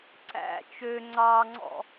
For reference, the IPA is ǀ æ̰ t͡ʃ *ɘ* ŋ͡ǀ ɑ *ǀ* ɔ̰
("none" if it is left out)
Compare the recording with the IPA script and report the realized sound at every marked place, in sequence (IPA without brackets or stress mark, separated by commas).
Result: ø, ŋ͡ǀ